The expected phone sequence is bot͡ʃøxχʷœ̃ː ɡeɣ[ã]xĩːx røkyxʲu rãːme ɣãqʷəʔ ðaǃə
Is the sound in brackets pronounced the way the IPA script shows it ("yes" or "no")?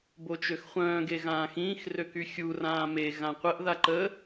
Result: no